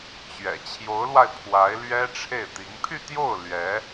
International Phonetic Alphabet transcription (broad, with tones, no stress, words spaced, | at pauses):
t͡ɕɥɛ̰˨˩ t͡ɕʰjo˧˥ʊ̯lwa˧ɪ̯ pʰwa˧˥ɪ̯lɥɛ˥ ʈ͡ʂʰe˥˩ɪ̯t̪i˧˥ŋ pʰy˥˧t̪jo˥˩ʊ̯ lɥɛ˧˥